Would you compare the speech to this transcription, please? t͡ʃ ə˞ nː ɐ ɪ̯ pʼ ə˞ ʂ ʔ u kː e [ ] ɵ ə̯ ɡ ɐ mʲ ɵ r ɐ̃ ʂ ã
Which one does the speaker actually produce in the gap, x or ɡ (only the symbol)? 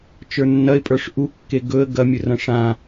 ɡ